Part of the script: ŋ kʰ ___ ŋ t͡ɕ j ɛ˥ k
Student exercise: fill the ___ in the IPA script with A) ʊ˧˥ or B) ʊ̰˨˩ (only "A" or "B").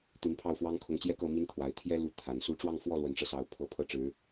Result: A